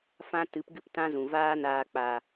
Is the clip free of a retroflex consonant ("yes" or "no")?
yes